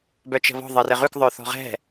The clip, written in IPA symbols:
b œ t͡ʃ ə̤ β ɔ̤ ðˤ ɜ r ɘ ʁ ʉ k ðˤ œ θ ɔ̤ ʁ ɛ̤

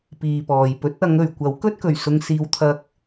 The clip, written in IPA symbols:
p iː˨ p ɔː˨ j p ɵ˨˥ t̚ ɐ˨˧ ŋ ɵ˨ ɥ kʷ ɐ˨˥ w k ɵ˥ t̚ k ɵ˨˩ ɥ s ʊ˧ ŋ s iː˧ w t̪ʰ ɐ˥ k̚

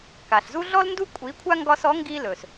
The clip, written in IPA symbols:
k a˩ ɬ z u˥ ɮ ɔ˥ l n d u˥ kʷʼ i˩˥ kʷʰ a˥ ŋ ɡ ɒ˧ s ɔ˩˥ ŋ ɡ i˧ l ɵ˩ s

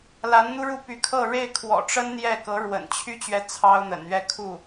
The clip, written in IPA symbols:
l a˧˥ n n̪ u˥ ɻ u˥˩ p y˧˥ kʰ ɤ˥˧ ɻ e˥˩ ɪ̯ kʰ w ɔ̰˨˩ ʈ͡ʂ ə˥ n n̪ j ɛ˥˩ k ɤ˧˥ ɻ w ə̰˨˩ n t͡ɕʰ y˥ t͡ɕ ɥ ɛ˧˥ t͡sʰ ɑ˥ ʊ̯ n̪ ə̰˨˩ n ɥ ɛ˥˧ kʰ u˥˩

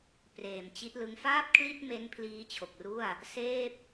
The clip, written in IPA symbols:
p r eː˨˩ m t͡ɕ i˦˥ t̚ l ɯ˦˥ ŋ f aː˥˩ p̚ kʰ l i˥˩ t̚ m e˦˥ n pʰ l iː˦˥ t͡ɕʰ o˨˩ k̚ r u˥˩ a̯ | s eː˥˩ p̚

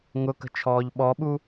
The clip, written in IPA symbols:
ŋ ʊ k ə̤ t͡ʃʰ ɔː ʎ ɓ ɔ ɓ u

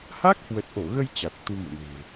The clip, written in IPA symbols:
h a˦˥ k̚ h w ə˨˩ t̚ ʔ o˧˩ ɣ ə˧ j t͡ɕ a˨˩ t̚ t̪ u˧ m ṵ˧˨ n e̤˨˩

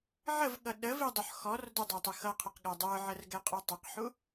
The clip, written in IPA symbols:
ʕ ə v ɠ ʌ ɗ ə v i dˤ ʊ ħ x ɔ r d ʊ dˤ æ tˤ ə x ʌ qʰ ə q ɠ æ dˤ ə˞ ʕ ə r ɡ ɛ qʼ u tˤ ə q ħ u

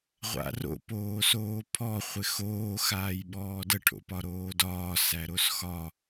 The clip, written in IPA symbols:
ʁʷ a̰ r o̰ p oː s oː pʰ ɔ χʷ ɪ x oː x aː j ɓ ɔː d ə ʈʰ o̰ p ɒ ɾ oː d ɒː s æ ɾ o s x ɒ

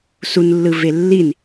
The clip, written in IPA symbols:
s u n lː ɯ v e lː i n

